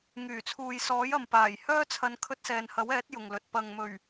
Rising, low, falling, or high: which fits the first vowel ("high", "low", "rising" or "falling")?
low